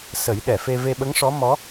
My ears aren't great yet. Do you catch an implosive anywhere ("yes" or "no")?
yes